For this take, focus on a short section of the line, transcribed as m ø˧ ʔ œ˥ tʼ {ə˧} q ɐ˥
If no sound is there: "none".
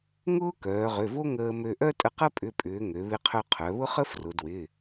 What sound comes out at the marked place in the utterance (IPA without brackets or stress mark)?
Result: ə˧